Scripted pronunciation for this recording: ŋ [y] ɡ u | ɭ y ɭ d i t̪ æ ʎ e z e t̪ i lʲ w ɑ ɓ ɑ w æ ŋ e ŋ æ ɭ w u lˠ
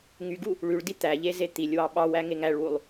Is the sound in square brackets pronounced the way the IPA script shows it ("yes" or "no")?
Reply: yes